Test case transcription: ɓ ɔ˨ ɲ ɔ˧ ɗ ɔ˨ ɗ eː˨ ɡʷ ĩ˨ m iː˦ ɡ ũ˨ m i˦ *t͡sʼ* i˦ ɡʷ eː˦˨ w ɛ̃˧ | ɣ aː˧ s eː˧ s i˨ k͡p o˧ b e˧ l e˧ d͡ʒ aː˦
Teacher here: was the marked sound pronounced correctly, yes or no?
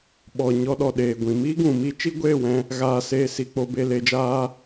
no